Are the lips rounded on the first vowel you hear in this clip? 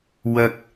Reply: no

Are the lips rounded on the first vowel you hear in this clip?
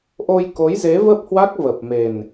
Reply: yes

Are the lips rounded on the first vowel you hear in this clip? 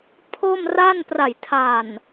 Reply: yes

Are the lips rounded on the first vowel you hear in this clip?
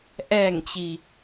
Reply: no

